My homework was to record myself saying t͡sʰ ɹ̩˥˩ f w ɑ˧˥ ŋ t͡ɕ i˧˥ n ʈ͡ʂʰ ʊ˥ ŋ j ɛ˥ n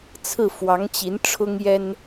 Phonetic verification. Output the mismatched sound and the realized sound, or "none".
none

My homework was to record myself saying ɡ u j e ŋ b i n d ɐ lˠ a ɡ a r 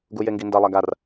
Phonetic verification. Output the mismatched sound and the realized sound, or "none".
b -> ɡ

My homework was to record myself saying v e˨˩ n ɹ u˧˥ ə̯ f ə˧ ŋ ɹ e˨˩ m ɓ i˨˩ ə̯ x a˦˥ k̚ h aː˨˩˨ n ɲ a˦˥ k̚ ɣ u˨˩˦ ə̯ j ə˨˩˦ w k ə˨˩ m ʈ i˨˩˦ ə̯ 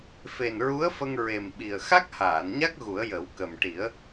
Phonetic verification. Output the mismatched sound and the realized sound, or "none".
v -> f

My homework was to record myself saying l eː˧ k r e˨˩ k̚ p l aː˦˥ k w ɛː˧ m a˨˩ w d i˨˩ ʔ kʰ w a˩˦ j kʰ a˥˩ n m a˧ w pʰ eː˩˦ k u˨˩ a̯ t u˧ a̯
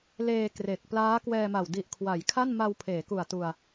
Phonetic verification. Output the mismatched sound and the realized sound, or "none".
none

